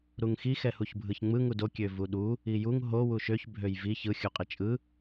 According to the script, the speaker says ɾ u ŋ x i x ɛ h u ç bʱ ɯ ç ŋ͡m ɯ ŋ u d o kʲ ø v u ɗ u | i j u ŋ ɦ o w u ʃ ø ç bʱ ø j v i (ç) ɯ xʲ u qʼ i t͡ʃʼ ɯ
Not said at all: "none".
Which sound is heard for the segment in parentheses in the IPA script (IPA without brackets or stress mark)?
ç